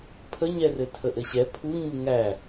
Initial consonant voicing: voiceless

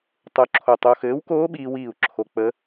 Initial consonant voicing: voiceless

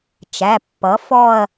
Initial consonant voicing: voiceless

